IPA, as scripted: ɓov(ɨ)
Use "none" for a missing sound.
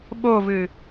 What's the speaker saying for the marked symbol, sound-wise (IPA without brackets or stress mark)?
ɨ